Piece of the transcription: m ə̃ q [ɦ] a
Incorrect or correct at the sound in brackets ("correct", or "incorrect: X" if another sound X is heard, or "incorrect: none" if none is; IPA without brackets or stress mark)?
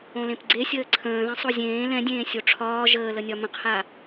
incorrect: h